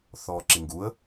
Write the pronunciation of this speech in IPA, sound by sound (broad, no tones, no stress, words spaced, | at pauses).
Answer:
θɔːǁiŋɡuə̯